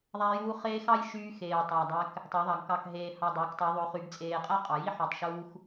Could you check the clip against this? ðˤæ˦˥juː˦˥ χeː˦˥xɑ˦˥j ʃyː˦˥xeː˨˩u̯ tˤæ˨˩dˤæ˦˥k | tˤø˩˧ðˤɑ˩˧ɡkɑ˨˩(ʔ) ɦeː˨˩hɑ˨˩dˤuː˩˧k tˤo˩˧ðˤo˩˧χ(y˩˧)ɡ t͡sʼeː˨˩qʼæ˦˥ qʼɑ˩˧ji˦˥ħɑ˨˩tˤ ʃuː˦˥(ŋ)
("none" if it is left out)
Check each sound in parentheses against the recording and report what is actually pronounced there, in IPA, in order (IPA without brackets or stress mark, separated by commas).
k, y˩˧, x